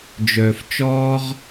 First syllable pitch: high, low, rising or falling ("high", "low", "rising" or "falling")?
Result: low